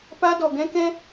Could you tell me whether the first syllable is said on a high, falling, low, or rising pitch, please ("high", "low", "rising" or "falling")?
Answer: high